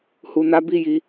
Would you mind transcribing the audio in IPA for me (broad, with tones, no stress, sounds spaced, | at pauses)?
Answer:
h u˨ n a˨˦ b i˦˨ j i˧